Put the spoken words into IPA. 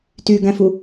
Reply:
t y ɡ æ̃ f u

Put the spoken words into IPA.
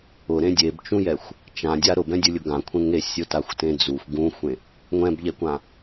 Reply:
ʊ ɾ ẽ dʲ e b t͡ʃ ũ j ɛ xʷ | t͡ʃ ã dʲ a ɾ ʊ b ɛ̃ dʲ u lʲ ʊ ɡ ã kʷʰ ẽ ŋ e sʲ ʊ t a xʷ t ẽ d͡z u xʷ ɡ ũ xʷ ẽ | ŋʷ ɛ̃ b ʎ ɛ kʷ ã

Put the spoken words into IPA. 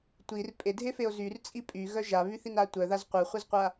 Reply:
tʷ i r pʼ e dʱ e f e o̯ z y r t͡sʼ i pʼ y ɣ œ ʒ a β y θ i n a tʷ œ ð a z qʷ œ χʷ e z qʷ a

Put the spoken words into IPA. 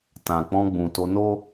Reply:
t ã˨ k͡p ɔ̃˧ ɡ͡b ũ˨ t o˧ n o˦

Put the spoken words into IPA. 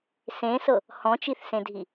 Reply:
s ẽ s ɤ | h ɔ̃ t͡ʃ i θ s ẽ dʱ i

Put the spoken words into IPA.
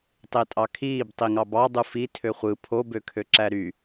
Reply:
tˤ e tʼ ɑ kʰ iː b tˤ i ŋ ɑ b ɑ dˤ u f i tʰ ø χʷ ɯ pʰ o b ø kʰ ø ǁ æ ɾ y

